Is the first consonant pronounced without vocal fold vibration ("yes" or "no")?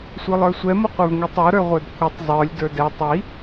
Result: yes